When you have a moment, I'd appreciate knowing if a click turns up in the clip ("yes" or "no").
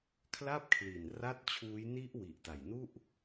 no